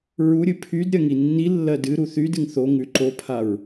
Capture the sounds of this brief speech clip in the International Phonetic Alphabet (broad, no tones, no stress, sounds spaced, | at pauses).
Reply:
ɹ u ɾʲ ɨ pʰ y d ɾʲ ɜ ŋ i nː i lː ɜ d ɨ ɾ u θ y d ɨ ŋ θ o ŋ ʉ ǃ o pʰ a ɹ